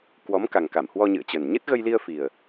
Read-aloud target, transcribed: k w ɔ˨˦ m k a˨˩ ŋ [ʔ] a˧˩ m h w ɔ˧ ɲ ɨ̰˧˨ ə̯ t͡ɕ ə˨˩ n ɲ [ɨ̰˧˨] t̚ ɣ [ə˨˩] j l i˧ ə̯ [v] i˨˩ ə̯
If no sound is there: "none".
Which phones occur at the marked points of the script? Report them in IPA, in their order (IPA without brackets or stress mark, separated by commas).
k, ɨ˦˥, ə˧, f